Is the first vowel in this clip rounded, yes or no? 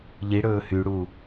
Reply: no